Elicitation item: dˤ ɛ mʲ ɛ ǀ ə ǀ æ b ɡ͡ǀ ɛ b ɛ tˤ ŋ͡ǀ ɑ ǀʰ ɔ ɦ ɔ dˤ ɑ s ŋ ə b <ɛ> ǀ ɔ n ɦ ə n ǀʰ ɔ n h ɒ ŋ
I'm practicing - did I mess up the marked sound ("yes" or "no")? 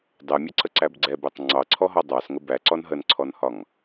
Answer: yes